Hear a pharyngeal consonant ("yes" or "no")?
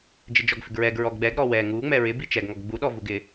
no